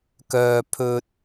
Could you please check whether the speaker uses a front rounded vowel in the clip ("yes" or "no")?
yes